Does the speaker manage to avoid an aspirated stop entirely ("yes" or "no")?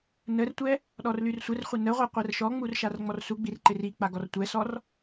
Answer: yes